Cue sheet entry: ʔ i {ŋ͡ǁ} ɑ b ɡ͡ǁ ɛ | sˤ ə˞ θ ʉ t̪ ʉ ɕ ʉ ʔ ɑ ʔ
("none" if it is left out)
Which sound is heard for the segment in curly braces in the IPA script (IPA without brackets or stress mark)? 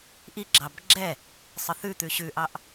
ɡ͡ǁ